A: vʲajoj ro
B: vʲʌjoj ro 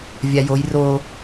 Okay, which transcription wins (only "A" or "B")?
A